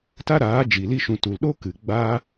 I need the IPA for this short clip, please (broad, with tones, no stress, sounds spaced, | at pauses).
t a˦ ɾ aː˨˦ d͡ʒ i˨ l i˧ ʃ ũ˨ t u˨ l ɗ o˦ k ɨ˨ ɡ͡b a˦